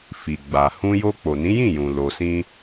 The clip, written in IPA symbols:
fi˨ɡ͡ba˨ hũ˧jo˧ k͡po˨nĩ˨˦jĩ˦˨jũ˨ lo˧sĩ˦

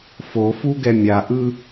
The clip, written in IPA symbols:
fofuɡɛ mʲaʔɯ

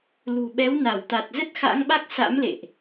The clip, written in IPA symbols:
lṳ˨˩ɓɛ˨˦w na˧˩wt̪a˨˩t̚ zə˦˥t̚xa̰˧˥ŋɓa˦˥k̚ sa̰˧˥mlḛ˧˨ʔ

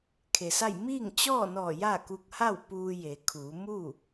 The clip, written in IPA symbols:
kʰe˩sa˥˨j miː˥˨ŋ t͡ɕɔː˥˨nɔː˧˩ ja˥˨ ku˧k̚ ha˥˨w puː˧ je˩˧kʰuː˩˧ mu˥˨

